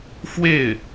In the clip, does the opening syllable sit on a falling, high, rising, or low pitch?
falling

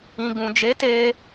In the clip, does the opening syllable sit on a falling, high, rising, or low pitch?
low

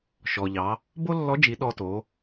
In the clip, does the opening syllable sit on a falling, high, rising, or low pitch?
low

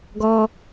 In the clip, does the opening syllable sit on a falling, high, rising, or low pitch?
high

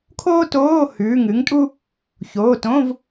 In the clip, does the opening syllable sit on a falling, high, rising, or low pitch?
high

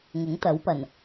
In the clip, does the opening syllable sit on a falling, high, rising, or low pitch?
rising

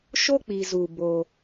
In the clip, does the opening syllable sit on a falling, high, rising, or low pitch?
high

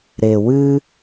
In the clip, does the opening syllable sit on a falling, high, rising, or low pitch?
low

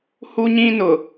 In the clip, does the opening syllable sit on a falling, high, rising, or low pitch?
high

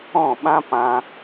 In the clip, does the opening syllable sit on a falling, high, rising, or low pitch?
falling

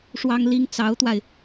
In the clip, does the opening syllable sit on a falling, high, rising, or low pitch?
high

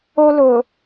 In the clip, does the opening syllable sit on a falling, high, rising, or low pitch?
high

